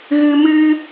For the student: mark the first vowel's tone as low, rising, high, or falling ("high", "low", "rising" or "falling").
low